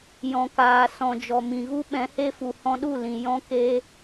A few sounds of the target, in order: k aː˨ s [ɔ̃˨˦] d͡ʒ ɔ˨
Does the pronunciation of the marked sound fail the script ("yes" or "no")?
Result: yes